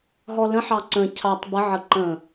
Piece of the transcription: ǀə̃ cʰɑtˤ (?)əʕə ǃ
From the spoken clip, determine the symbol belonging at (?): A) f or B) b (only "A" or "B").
B